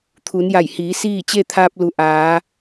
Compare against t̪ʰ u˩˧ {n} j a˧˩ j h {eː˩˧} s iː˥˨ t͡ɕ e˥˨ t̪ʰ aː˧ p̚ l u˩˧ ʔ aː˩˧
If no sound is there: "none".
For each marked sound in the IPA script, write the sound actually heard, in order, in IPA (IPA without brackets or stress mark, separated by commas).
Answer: n, iː˩˧